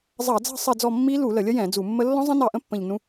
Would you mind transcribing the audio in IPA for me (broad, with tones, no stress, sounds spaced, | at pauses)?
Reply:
zˤ ɑ˧˩˧ d͡z ɑ̤˦˨ sˤ ɜ˦˨ d͡z ɔ˦˨ mː i˦˥ l u˧˩˧ l ə˧˩˧ lʲ ə˦˥ j ɛ̃˧˩˧ d͡z u˧˩˧ mː ə˦˥ lː ɔ̃˦˥ zˤ ə̃˦˥ n ɑ˦˨ ʔ ə̃˦˥ pː ə̃˦˨ ʎ n ũ˦˥